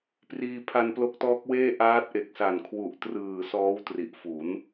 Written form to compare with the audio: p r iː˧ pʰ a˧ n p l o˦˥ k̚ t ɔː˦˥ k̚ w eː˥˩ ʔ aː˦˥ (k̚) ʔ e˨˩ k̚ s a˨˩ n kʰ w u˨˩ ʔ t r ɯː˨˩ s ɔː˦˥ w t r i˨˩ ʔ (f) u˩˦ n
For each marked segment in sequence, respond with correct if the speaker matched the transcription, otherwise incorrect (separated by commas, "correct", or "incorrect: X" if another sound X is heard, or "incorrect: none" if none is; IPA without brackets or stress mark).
incorrect: t̚, correct